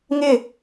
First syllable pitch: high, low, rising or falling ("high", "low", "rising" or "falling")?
falling